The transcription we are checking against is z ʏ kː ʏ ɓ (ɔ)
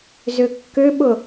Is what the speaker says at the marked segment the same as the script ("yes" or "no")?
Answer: no